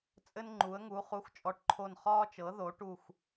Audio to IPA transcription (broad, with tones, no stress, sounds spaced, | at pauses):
t͡sʼ ɘ˦ n ŋ͡ǃ u˩˥ ə̯ ŋ u˩˥ χ u˩˥ x t͡ʃʼ ɔ˩˥ ʈ ǃʰ o˧˩ n χ ɒː˦ t͡ʃ ɤ˩˥ ð o˩˥ ʈ u˧˩ x